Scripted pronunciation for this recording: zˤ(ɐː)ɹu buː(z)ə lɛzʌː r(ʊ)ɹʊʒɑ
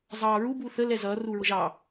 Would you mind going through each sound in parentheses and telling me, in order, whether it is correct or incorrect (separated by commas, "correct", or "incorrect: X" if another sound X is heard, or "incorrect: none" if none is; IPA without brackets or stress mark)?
incorrect: ɑː, incorrect: θ, incorrect: u